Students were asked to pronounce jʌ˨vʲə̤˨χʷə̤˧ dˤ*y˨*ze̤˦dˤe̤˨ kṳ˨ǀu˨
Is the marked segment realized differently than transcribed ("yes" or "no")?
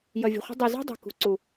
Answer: no